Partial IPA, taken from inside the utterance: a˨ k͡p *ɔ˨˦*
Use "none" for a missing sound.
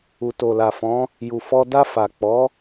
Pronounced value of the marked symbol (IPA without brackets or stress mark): ɔ˨˦